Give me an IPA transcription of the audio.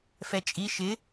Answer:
f ɛ t͡ʃʼ i ʃ ɪː

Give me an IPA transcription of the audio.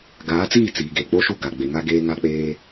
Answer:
ɡ aː˨˦ t͡s iː˦˨ t͡s iː˨ ɡ e˨ k͡p o˦ ʃ u˦˨ ɡ a˨ ɡ͡b e˨ ŋ a˦ ɡ eː˦ ŋ a˦ k͡p eː˦

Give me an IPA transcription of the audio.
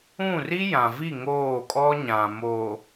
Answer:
ũ˦˨ r i˦ j ã˨ v i˦˨ ŋ oː˦˨ kʼ ɔ˦ ɲ ã˨ m oː˨

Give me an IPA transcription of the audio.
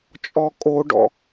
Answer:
t͡ʃʼ ɔ kʼ o ɖ ɔ̰

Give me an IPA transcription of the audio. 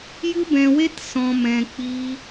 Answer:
j ɨ˦ b ɛ̃˧ w e˦ t s ɔ̃˧ m ɛ̃˧ k͡p i˦

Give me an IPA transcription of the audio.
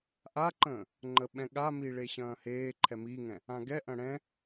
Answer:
ʔ a ǃ ə̃ː | ŋ͡ǃ ə ɓ ɛ̃ ɠ a m i ɭ e ɕ ɐ̃ː h eː ǃʰ ɛ m i ŋ ɛ̃ | ã ɡ ɛ ʔ ɐ̃ ɽ ɛ̃

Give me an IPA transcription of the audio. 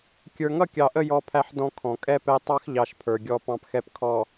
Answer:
kʲ ə˞˨ ŋ ʌ˦˨ kʲ ɑ˨ ʔ ə˦˨ j ɔ˦ pʰ æ˦ ħ d ɔ̃˦ kʰ ɔ̃˨ kʼ ɛ˦ p ɛ˦ tˤ ɑ˦ x ʎ ɑ˨ ʃ pʰ ə˞˨ ɡʲ ɔ˦ p ɑ̃˦ p x ɛ˦ p kʰ ɔ˨

